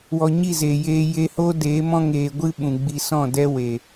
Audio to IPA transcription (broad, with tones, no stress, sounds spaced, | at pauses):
w ɔ˨ ɲ i˦˨ z eː˨ j eː˧ j e˧ h o˦ d eː˨˦ m ɔ̃˦ ŋ eː˧ ɡʷ ɨ˦ ɓ ũ˨ ɡ͡b i˧ s ɔ̃˦˨ d ɛ˦ w e˨